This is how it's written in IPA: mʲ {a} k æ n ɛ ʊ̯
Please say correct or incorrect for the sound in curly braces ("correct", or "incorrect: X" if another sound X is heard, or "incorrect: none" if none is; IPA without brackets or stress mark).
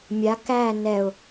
correct